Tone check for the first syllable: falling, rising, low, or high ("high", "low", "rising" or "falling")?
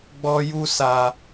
high